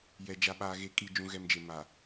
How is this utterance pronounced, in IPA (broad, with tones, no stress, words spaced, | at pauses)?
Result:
jɛ˨ d͡ʒa˨ɓaː˨ɣe˨˦ kʼiː˨d͡ʒũ˨ɣɛ˨md͡ʒe˨ ma˨